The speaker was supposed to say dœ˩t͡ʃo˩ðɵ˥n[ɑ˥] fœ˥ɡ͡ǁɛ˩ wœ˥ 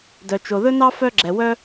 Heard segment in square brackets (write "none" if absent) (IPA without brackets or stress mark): ɑ˥